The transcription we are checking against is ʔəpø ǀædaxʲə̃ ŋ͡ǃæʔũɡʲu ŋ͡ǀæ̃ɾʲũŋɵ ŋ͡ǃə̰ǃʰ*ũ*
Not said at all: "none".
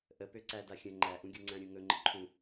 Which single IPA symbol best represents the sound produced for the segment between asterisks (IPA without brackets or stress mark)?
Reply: ũ